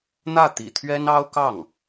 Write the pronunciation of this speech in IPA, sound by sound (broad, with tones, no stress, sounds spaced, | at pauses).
n̪ ä˥˩ t̪ ḭ˨˩ t̪ʰ ɥ ɛ˥ n ɑ˥ ʊ̯ k ɑ˥˩ ŋ